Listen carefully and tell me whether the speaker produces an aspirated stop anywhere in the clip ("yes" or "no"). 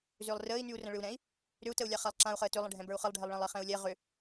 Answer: no